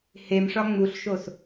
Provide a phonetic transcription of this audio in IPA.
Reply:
h e m ʂ ɒ ŋ͡m u ɬ ʃ o s

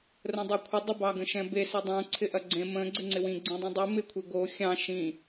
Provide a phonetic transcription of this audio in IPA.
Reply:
r ə̃ dˤ o kʷʰ ɪ dˤ ə b ɑ ɡ ə̃ ʃ ɛ̃ b e s ɛ dˤ õ ǀʰ ɪ ʔ ɐ ɡ͡ǀ ẽ m ə̃ ɡ͡ǀ ɪ ŋ͡ǀ ɪ w ĩ ɡ͡ǀ ĩ dˤ ĩ dˤ i m ɪ kʷʰ e ɡ o xʲ ɑ̃ ʃ ĩ

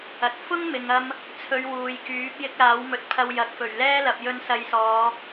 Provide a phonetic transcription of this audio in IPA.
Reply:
ɐ˨˥ t̚ f ʊ˥ ŋ m ɪ˨ ŋ ɐ˧ m | t͡sʰ ɵ˨˧ ɥ w uː˨ j k yː˨˥ p̚ j ɪ˥ k̚ l aː˨˥ w m ɵ˨ t̚ pʰ ɐ˧ w j ɐ˨ k̚ f ɵ˨˩ ɥ l ɛː˥ l ɐ˨ p̚ j ɵ˧ n s ɐ˨˧ j s ɔː˨˧

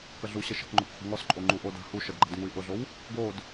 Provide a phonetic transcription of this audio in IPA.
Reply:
k ə ɮ u ɕ ə ʃ ə̤ k ŋ͡ǃ ʊ k χʷ ə̤ ŋ ɔ s ǃʼ o ŋ͡ǃ u ʔ o d a̤ h u ʃ ə d ɡ͡ǃ a̤ d ŋ u i̯ ʔ ʊ ɮ o w | ɡ o d

